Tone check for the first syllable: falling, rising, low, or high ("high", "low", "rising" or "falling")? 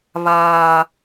high